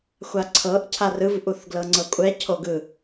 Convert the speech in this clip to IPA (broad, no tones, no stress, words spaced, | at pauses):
xʷaǀʰɤʔ cʰarɯv ʔuθɡlɤŋ͡ǀɤkʷʼɛ cʰoɡɯ